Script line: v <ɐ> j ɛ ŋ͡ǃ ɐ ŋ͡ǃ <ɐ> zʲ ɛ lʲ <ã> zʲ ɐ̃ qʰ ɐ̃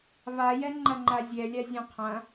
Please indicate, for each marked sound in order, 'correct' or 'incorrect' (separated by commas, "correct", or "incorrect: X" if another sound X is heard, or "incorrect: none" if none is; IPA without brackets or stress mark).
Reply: incorrect: a, incorrect: a, incorrect: a